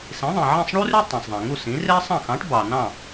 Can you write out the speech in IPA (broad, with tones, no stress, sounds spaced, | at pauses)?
s ĩ˩˥ ðˤ ĩ˩ ʕ ẽ˥˩ sˤ ɳ u˥ r y˥ tˤ ẽ˩ sˤ ðˤ ẽ˩ ŋ u˥˩ s ĩ˩˥ r e˥ sˤ ɑ̃˥˩ x ɑ̃˩˥ ʈ b ɑ˩ n ɑ̃˥˩